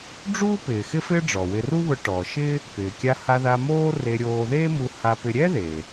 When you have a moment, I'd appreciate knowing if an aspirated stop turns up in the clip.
no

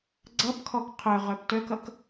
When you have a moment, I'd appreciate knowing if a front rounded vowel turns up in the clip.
yes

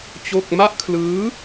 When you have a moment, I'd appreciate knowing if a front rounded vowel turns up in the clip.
no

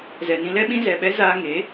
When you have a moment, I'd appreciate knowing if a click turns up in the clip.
no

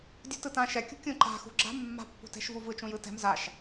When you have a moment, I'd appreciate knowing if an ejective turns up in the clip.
no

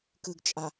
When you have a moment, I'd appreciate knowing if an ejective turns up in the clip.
yes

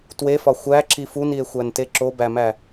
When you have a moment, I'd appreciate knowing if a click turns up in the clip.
yes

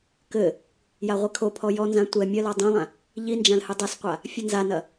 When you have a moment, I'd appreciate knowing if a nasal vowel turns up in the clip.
yes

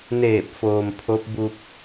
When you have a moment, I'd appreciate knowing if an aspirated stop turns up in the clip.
yes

